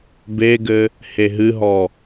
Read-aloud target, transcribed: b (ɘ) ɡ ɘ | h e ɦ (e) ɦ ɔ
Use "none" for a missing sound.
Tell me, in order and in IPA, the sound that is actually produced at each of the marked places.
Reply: e, ɨ

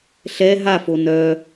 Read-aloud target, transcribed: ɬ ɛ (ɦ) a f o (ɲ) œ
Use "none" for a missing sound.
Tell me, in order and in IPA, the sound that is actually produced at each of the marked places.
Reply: ɦ, n

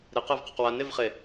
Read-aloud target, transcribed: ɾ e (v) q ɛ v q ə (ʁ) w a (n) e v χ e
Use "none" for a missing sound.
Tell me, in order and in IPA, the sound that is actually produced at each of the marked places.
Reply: none, q, n

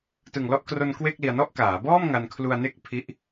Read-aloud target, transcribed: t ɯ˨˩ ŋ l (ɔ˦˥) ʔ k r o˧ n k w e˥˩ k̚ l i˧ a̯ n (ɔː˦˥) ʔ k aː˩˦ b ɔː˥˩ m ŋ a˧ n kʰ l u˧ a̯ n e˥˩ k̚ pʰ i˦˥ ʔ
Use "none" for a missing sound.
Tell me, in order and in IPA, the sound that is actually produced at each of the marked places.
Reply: ɔ˦˥, ɔ˦˥

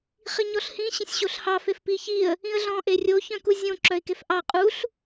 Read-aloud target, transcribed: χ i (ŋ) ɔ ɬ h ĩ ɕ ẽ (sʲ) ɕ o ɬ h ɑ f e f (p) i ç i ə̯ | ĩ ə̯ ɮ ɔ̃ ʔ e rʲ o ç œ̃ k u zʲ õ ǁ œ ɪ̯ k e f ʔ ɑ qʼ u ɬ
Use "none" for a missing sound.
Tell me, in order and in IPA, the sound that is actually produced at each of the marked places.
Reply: ɲ, sʲ, p

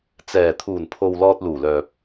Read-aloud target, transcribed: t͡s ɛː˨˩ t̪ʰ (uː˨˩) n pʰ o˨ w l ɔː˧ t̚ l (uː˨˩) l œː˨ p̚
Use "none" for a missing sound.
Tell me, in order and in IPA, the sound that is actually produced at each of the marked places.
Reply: uː˨˩, uː˨˩

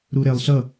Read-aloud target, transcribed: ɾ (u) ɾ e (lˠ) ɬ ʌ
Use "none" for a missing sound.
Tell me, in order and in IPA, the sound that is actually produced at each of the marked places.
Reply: u, lˠ

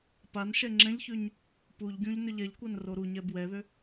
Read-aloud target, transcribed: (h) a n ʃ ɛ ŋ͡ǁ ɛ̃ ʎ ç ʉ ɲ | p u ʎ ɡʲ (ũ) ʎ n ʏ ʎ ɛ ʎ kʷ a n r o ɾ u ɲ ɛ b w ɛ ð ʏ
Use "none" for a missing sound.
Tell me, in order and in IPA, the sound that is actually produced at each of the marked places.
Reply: p, ũ

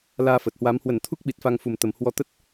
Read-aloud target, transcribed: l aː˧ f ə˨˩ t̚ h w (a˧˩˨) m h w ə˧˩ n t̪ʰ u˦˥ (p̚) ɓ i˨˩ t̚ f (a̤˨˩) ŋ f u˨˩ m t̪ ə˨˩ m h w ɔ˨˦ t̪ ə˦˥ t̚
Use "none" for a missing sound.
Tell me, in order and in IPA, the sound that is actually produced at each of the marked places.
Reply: a˨˦, k̚, a˧

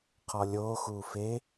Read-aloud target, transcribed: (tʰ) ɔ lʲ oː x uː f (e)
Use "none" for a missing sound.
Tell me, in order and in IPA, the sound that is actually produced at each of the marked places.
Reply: qʰ, e

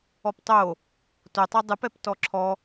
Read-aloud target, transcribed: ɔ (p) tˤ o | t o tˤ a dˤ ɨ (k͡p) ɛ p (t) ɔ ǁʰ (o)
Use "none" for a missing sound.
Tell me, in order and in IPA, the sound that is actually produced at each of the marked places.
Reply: p, p, t, ɔ

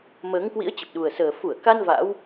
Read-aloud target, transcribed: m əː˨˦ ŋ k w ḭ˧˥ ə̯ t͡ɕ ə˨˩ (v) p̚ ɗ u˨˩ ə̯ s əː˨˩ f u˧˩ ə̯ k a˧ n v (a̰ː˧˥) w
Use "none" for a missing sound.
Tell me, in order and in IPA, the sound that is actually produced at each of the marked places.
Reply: none, a̰ː˧˥

